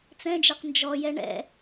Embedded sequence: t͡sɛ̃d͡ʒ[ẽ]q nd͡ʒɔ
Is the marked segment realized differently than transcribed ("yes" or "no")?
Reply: yes